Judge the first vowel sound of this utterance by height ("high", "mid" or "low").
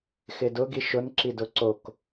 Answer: high